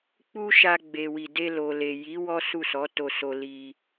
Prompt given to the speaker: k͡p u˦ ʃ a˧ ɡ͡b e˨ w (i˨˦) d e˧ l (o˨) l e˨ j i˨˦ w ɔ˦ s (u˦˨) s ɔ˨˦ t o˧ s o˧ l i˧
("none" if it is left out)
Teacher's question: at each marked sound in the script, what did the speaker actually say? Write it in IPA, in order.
i˨, o˨, u˦˨

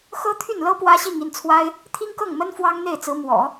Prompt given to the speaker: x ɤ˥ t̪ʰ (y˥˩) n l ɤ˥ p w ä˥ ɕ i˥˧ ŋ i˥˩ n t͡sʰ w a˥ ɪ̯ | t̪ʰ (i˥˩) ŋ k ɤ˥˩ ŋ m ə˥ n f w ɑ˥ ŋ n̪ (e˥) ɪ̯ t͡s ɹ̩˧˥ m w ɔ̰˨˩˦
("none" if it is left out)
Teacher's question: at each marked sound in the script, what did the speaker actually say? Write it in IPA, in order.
y˥˩, i˥, e˥˩

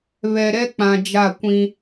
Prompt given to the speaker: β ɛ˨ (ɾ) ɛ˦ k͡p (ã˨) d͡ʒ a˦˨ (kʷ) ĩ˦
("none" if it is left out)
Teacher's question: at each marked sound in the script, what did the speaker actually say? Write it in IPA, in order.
ɾ, ã˨, kʷ

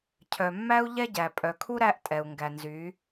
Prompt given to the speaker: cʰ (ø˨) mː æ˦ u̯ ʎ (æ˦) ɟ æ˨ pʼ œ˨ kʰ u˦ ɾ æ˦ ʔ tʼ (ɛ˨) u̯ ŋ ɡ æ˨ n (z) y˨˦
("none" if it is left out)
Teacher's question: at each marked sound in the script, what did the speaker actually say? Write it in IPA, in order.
œ˨, ɛ˦, ɛ˨, z

